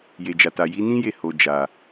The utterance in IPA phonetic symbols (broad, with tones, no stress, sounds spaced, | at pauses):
j e˨ d͡ʒ a˨ t a˨ j i˨˦ n ĩ˦ j e˦˨ h o˨ d͡ʒ a˨